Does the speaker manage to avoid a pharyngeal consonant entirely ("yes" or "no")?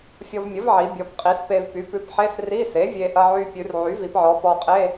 no